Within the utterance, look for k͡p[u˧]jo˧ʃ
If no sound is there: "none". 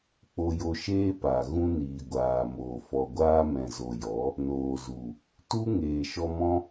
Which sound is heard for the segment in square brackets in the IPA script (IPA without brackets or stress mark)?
o˧